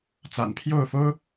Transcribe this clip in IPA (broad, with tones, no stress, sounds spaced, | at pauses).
t͡s a̰˨˩ n pʰ j o˥˨ ʊ̯ f o˦ ʊ̯